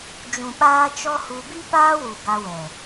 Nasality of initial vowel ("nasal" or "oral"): nasal